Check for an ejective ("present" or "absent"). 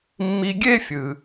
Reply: absent